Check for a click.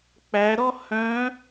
absent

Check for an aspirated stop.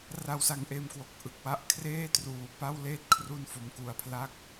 present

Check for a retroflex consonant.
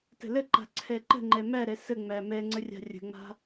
absent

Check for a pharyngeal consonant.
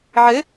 present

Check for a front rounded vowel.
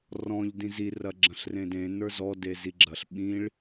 absent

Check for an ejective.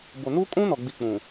present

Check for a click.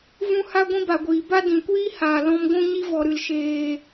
absent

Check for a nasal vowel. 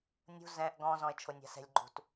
present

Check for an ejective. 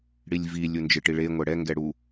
absent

